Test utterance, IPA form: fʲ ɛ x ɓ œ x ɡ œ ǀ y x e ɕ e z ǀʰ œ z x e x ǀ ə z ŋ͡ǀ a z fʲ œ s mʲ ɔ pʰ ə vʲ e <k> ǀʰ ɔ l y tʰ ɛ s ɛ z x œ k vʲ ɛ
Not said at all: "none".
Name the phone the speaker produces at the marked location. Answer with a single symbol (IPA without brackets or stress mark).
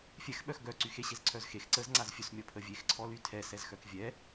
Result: x